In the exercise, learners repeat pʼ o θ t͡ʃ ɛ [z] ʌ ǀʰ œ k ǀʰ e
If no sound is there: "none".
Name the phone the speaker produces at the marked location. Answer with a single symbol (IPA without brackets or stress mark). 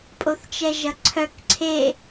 ʒ